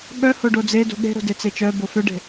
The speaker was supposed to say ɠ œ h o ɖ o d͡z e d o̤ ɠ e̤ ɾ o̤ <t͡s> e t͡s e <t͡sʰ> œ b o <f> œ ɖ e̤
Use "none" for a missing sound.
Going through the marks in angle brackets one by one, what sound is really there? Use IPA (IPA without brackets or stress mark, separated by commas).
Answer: d, t͡ʃ, f